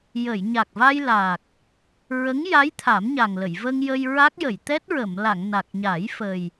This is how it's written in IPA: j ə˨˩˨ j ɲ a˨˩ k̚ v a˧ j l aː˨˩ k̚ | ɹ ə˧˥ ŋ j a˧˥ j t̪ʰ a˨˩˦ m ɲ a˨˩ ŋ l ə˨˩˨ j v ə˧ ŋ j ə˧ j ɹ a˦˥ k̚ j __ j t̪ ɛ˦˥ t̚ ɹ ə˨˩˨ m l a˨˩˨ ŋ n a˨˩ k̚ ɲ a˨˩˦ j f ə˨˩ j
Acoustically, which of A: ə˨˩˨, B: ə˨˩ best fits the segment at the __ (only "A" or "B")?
A